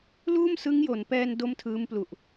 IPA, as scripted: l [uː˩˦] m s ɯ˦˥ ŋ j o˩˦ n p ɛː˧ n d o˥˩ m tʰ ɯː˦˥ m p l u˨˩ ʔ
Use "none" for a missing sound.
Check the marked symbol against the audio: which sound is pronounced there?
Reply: uː˥˩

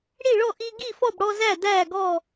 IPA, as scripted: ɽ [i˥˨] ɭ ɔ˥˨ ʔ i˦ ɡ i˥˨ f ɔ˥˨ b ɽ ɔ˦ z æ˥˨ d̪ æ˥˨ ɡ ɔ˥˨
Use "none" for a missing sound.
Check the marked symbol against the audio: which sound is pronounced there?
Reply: i˥˨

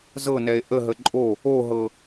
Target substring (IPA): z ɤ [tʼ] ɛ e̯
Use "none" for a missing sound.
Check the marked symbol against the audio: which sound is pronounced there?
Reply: n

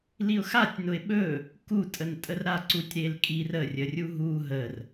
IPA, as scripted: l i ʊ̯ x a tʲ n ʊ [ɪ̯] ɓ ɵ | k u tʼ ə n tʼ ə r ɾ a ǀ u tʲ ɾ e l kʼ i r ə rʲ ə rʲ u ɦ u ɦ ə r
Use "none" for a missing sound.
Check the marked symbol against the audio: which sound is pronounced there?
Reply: ɪ̯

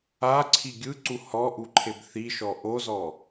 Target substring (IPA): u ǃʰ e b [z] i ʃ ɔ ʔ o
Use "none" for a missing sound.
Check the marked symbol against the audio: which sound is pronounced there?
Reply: θ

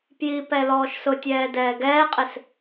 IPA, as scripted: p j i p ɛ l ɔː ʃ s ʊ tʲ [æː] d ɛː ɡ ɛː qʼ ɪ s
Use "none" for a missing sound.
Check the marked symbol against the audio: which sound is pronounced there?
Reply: ɛː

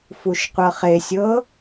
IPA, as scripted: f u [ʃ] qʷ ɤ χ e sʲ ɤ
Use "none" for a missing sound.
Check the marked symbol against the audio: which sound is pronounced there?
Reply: ʃ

